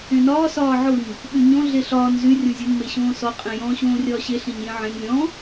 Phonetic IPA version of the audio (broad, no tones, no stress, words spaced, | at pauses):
ẽnɒː sɒːʕʊɲ | ɓyɲɔ̃ ɮeɬɒːn zy rʲɔ̃zʲʊn meɕõːsɔ qʼẽjɔ̃ ɕõːrʲɒːɕe ɬẽɲjẽʕẽn lʲɔ̃